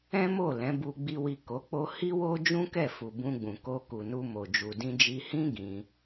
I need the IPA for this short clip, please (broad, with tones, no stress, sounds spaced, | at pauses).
ɛ̃˦ m o˦˨ l ɛ̃˨˦ b u˧ ɡ͡b i˧ w i˨ k o˨˦ k͡p o˦ h i˦ w o˦ d͡ʒ ũ˦ k ɛ˦˨ f u˨ b ũ˧ ɡ͡b ũ˨ k o˧ k u˨ n u˧ m o˨ d͡ʒ u˨ d ĩ˧ d͡ʒ i˧ h ĩ˦ ɡ ĩ˧